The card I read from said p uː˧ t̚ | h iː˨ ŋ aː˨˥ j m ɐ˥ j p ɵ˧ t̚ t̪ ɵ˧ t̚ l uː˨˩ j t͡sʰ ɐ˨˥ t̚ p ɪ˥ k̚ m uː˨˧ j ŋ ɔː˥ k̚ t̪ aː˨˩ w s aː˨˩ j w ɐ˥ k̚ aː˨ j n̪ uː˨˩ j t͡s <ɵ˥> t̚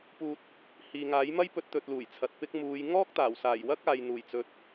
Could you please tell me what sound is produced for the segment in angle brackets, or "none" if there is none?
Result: ɵ˨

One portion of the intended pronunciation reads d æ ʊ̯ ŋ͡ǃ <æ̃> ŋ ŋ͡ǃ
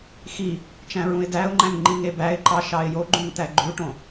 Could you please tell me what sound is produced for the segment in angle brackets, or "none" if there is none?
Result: æ̃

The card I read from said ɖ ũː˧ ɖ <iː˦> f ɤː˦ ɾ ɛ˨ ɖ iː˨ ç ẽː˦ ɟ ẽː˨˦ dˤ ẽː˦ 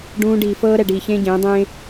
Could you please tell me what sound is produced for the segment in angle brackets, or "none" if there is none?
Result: iː˨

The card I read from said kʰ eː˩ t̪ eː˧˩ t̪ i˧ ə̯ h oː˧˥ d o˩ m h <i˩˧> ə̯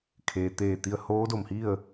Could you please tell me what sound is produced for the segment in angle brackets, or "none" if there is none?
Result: i˥˨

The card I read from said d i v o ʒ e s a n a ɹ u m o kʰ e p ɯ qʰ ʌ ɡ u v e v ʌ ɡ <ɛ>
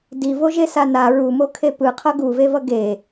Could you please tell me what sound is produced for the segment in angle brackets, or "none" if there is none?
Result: e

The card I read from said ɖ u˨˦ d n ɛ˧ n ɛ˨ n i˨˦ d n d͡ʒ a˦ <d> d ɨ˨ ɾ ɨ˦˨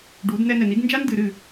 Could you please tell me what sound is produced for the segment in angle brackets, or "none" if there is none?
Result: n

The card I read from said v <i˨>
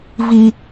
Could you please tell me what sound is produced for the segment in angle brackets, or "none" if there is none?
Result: i˦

